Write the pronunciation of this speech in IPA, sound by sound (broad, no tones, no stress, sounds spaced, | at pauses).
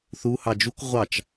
θ u h ɑ d͡ʒ u k ʁʷ ɑ t͡ʃ